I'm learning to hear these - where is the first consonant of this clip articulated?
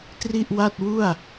tongue tip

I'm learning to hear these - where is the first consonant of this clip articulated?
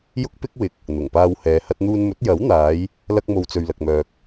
palate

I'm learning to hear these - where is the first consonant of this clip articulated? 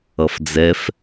lips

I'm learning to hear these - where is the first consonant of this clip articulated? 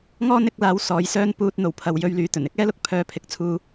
velum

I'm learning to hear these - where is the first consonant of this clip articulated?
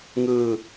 velum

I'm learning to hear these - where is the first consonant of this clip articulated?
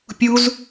lips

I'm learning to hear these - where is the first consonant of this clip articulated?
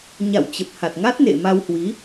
palate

